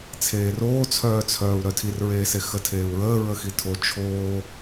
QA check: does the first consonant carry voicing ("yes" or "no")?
no